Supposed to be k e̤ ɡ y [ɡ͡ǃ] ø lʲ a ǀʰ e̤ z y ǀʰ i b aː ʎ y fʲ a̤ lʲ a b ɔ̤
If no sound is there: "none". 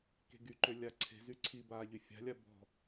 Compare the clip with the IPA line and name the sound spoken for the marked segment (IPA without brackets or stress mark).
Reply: ǃ